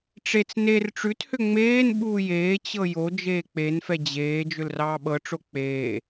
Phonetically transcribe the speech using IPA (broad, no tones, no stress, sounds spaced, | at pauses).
ʈ͡ʂ e t͡s n e r ʈ͡ʂ ʉ t h ʏ ŋ͡m eː n ɓ uː j eː t͡ɕ ɤ j o d͡ʒ eː k͡p e n f ɛ d͡ʑ eː d͡ʒ ʏ l r ɑː ɓ ɤ ʈ͡ʂ o k͡p eː